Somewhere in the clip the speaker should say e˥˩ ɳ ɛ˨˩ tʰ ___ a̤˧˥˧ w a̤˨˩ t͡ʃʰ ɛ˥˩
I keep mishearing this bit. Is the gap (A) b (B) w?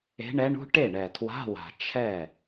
B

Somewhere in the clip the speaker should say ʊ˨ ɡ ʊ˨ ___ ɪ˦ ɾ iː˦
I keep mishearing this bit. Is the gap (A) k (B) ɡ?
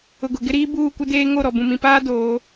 B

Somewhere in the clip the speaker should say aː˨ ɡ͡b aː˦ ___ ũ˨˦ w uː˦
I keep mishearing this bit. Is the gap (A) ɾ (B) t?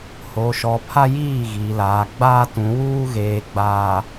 B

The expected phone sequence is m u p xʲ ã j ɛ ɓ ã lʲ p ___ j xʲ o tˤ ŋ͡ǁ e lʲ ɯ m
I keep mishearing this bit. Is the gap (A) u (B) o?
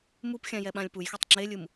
A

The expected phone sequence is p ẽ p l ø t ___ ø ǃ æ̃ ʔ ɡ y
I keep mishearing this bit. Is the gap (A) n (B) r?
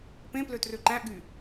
B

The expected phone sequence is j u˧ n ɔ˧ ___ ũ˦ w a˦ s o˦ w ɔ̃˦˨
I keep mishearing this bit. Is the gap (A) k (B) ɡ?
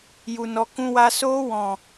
A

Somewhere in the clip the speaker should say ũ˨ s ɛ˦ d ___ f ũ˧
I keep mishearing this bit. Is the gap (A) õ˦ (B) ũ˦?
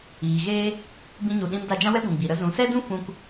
B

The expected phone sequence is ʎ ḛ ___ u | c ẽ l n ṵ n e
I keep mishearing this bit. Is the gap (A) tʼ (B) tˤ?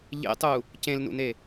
B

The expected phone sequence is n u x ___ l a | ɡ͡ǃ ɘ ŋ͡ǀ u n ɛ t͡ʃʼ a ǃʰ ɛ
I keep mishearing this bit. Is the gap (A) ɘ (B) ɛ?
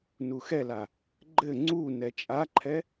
B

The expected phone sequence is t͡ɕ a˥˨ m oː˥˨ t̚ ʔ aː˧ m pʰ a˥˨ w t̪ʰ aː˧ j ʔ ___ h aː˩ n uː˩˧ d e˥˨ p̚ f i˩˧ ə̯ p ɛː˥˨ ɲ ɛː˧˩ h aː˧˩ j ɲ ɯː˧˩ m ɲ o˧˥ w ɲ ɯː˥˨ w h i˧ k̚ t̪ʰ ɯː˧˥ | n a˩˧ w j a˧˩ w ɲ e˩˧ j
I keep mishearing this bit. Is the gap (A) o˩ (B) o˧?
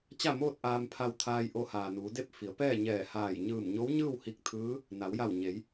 B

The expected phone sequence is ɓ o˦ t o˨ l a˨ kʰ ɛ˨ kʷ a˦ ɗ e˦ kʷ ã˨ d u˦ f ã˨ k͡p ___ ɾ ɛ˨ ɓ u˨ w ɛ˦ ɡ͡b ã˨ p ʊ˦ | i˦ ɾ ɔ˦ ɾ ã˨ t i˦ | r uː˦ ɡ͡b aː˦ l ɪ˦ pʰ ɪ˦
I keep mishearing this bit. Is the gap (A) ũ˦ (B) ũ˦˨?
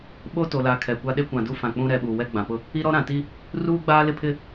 A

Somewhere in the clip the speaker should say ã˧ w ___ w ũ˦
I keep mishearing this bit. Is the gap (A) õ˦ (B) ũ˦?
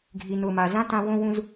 A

